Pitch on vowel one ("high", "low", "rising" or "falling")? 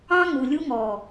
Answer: high